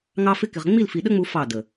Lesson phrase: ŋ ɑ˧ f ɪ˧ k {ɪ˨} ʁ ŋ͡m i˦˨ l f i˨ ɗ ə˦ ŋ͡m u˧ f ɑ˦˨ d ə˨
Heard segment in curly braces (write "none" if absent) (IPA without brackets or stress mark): ɪ˨